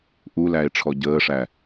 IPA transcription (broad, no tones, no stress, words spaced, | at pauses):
ʔulæe̯ ʈ͡ʂʰɔɟəːʂæ